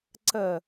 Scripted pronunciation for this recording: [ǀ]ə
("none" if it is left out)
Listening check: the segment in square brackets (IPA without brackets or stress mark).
ǀ